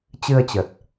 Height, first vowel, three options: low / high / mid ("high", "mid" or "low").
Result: high